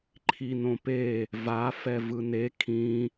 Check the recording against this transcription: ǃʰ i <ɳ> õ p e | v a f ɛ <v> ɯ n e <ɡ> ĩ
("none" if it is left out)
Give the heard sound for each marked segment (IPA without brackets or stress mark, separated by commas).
n, v, kʰ